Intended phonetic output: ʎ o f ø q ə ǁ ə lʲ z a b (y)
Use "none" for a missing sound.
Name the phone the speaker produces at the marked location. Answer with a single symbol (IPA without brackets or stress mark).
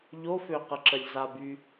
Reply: y